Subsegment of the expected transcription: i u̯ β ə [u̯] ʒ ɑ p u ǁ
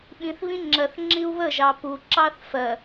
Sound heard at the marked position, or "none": none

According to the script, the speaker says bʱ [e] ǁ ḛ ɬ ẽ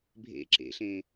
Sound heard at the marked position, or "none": ḛ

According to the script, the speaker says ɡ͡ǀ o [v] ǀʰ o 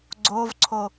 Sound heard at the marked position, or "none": v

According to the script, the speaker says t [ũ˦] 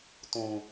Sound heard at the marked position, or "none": ũ˨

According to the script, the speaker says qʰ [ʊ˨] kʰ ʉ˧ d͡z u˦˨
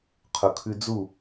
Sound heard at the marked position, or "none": ʊ˨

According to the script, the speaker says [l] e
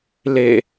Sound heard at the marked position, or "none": l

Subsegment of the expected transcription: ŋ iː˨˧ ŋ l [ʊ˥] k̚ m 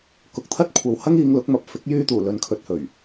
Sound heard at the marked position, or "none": ʊ˨˥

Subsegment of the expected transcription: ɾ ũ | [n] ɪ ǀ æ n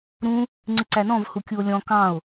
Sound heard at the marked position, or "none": ŋ͡ǀ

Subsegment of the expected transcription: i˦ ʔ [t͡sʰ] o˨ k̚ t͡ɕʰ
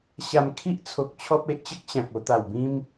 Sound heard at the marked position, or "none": t͡sʰ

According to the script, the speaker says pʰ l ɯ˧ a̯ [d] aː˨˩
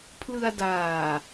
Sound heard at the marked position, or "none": d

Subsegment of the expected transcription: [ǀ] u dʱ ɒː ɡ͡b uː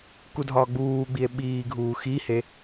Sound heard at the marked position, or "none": k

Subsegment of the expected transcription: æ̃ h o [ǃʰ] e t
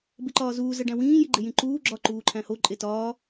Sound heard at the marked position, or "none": ǃʼ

